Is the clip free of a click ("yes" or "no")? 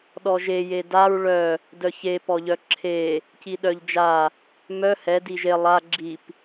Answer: no